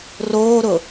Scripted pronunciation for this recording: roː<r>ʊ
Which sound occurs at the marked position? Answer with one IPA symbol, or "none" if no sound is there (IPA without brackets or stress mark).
ɾ